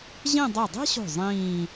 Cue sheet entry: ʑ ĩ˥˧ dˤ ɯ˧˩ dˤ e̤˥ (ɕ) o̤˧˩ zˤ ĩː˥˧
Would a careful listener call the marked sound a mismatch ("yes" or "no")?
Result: no